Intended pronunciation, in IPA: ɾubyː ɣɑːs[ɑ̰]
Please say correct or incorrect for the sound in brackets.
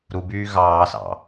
correct